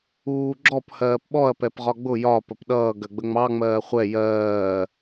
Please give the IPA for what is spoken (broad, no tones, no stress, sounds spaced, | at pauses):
uː ɡ͡ǁ ɔ p h ɜː p ɓ ɔ ɐ̯ p ɛ p ʁ ɒ ɡ͡b ʊ j ɒ p ə p ɗ ʌː ɡ ɜ ɡ͡b ə ŋ͡m ɑ ŋ͡m ɜː χʷ ɛ j ɜː